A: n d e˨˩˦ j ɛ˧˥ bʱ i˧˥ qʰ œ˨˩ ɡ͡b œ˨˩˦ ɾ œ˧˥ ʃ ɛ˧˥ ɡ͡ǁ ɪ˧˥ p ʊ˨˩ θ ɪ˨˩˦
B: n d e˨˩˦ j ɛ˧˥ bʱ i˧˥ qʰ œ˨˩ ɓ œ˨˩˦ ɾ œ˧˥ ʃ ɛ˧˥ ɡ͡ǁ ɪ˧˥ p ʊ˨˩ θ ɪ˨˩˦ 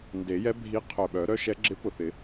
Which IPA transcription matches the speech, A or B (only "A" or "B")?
B